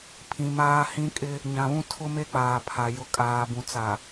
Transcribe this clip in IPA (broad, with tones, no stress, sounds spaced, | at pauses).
pʰ ĩ˨ m aː˦ h ĩ˦ kʼ ɪ˦ | ɲ ã˨ β ũ˦ tʰ ʊ˦ m e˦ k͡p aː˨ pʰ a˨ j ʊ˦ kʼ aː˨ b ũ˨ t͡s a˨